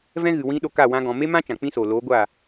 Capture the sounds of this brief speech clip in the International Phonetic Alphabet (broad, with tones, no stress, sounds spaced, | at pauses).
v ɛ̃˦ ɣ ɨ˨ w ĩ˧ ɗ o˧ k a˦˨ w ã˦ ɡ ɔ̃˧ m e˦ m ã˦ t͡ʃ ã˨ k͡p ĩ˦ s oː˨ l oː˨˦ ɡʷ aː˦˨